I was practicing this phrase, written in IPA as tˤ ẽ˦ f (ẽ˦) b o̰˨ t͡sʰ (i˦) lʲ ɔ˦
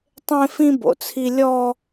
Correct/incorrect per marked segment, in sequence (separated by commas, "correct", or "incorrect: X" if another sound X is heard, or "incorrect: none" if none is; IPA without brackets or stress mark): incorrect: ĩ˦, correct